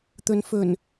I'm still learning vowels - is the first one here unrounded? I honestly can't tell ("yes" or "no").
no